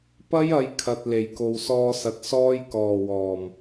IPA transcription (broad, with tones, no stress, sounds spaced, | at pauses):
p ɐ˥ j ɐ˨˧ j kʰ ɐ˨ t̚ l e˨˩ j k o˨ w s ɔː˧ s ɐ˨ t̚ s ɔː˧ j k ɔː˨˩ w ɔː˨˩ m